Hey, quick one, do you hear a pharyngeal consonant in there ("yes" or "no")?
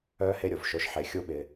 yes